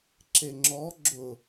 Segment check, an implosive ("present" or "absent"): absent